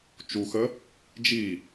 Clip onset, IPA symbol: t͡ʃ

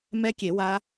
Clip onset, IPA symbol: m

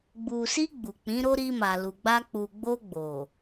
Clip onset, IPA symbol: ɡ͡b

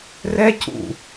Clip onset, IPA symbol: r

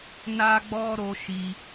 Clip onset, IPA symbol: n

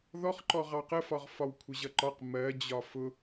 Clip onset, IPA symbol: ð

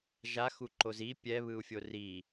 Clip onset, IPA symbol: ʒ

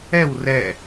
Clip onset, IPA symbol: ɛ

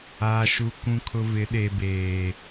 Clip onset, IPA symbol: aː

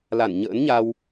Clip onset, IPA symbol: l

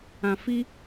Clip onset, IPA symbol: ã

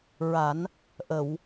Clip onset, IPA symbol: ɹ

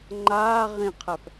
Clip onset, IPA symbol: ŋ͡ǃ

